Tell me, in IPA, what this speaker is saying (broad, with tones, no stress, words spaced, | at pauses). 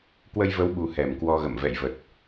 kwə˧jvə˨˦wɓu˨˩ hɛ˨˩mkwɔ˧ɣə̰˧˨m vɛ̰˧˨j və˨˩t̚